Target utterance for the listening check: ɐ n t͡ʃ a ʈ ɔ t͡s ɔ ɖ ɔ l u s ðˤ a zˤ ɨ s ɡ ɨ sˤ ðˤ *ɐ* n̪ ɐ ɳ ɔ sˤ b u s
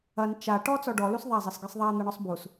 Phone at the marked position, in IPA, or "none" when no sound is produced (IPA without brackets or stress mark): a